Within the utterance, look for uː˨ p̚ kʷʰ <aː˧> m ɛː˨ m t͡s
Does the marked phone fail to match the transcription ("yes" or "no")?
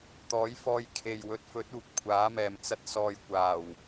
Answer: yes